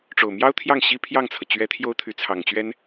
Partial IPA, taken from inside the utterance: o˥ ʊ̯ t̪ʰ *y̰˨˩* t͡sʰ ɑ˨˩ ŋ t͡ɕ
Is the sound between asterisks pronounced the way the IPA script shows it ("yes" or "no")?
no